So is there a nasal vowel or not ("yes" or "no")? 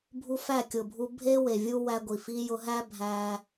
no